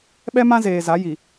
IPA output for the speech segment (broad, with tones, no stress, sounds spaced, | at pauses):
ɓ ɛ˦ m ã˦ z eː˨ z a˨˦ j i˨